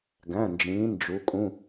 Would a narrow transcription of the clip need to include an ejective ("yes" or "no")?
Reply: yes